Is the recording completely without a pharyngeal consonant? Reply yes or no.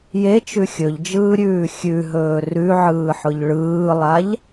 no